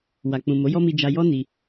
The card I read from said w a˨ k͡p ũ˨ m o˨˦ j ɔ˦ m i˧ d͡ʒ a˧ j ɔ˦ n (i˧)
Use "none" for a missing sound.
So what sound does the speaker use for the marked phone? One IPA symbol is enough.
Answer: i˧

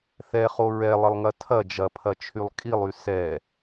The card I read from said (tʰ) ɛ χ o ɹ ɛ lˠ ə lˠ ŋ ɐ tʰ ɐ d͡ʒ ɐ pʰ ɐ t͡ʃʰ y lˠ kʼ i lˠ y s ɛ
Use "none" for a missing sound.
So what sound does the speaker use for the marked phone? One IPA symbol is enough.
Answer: θ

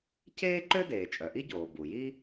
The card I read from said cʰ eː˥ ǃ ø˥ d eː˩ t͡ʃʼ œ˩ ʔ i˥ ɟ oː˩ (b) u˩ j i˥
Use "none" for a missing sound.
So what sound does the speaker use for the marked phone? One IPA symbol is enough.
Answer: b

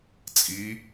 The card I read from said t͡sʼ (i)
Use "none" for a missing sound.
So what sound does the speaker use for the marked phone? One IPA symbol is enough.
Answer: i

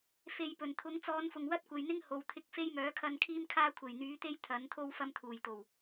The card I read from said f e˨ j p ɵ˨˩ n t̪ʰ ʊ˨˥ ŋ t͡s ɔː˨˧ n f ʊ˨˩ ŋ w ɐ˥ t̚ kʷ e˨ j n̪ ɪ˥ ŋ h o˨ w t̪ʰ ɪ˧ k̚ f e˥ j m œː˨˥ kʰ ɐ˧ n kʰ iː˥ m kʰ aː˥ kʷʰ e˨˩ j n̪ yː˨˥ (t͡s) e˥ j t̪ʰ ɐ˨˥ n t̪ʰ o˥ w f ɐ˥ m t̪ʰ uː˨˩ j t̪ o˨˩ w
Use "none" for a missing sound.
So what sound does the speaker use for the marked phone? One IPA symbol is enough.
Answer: t̪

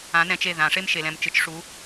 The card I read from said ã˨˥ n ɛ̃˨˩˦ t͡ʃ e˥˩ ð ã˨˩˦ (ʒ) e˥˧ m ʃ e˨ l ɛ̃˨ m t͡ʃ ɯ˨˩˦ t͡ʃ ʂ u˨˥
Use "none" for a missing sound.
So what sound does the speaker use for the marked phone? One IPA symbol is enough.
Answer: ʂ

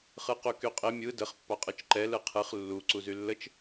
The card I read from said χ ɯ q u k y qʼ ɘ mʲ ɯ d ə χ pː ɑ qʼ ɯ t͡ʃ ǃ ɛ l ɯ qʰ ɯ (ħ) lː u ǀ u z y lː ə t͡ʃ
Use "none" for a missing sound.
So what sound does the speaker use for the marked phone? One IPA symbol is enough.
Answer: χ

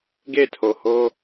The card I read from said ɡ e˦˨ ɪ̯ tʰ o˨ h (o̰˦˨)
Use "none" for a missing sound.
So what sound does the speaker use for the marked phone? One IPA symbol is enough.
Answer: o˦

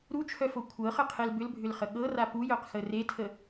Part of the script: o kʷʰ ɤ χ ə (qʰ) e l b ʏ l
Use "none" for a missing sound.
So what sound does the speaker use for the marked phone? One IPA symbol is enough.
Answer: qʰ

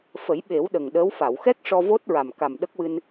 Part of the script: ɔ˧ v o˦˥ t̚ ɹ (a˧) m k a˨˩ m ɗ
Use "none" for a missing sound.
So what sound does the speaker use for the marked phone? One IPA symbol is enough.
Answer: a˨˩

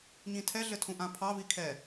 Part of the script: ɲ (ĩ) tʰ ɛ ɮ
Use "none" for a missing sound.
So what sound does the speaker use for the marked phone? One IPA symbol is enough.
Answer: ĩ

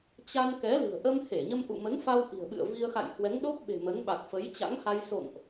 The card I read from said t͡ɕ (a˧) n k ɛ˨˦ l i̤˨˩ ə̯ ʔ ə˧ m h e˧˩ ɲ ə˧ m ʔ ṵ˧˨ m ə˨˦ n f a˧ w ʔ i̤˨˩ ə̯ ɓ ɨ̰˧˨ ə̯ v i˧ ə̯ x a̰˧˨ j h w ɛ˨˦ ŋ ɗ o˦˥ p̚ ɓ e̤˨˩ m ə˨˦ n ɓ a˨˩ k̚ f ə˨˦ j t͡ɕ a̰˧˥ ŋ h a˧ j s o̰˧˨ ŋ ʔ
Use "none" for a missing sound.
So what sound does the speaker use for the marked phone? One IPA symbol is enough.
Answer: a˧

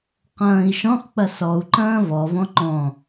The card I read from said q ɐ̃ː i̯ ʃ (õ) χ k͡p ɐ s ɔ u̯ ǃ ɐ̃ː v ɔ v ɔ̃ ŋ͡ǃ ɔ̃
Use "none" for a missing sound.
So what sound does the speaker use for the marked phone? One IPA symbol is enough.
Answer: ɔ̃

